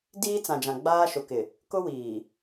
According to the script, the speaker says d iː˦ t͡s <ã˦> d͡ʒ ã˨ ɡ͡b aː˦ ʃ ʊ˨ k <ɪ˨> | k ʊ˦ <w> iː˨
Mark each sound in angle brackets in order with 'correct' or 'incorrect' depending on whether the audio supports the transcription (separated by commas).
incorrect, correct, correct